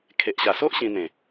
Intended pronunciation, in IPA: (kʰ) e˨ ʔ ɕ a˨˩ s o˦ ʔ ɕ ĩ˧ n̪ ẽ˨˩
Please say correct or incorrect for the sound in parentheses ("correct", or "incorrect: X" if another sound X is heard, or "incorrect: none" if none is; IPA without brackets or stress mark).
correct